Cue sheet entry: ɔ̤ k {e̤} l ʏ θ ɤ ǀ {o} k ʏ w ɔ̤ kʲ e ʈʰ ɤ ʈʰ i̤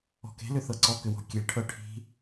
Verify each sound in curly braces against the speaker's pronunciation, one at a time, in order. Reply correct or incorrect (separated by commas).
correct, incorrect